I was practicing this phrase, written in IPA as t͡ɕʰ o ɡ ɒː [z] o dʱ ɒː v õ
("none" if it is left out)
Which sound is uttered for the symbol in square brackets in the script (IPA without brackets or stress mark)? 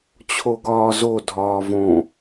z